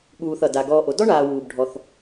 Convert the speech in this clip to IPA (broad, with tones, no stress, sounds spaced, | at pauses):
ɠ uː˨ θ ʌ˩ d a˩ ɡ ɔː˨ ʔ o˩ d ɔ˥ ɳ aː˨ w uː˩ b ɖʱ ɔ˩ θ